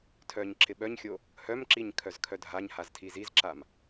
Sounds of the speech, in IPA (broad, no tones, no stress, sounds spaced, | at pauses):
tʰ œ ɲ ǁ ɪ ɓ œ ɲ xʲ o | h œ m ǁ i ɲ kʰ œ z kʰ œ dʱ a ɲ h a z tʰ i z i z ǁ a m